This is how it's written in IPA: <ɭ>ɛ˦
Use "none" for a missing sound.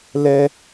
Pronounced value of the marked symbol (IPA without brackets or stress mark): l